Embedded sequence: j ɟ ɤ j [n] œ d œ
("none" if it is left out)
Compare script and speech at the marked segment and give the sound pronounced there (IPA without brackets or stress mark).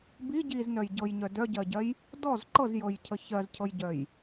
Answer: ɲ